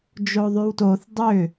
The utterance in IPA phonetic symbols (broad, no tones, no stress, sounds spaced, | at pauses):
d͡ʒ o ðˤ y w t o θ dˤ ʏ